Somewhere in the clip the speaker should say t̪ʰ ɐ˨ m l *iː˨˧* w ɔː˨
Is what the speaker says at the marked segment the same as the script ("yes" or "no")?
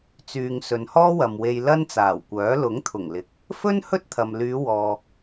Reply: no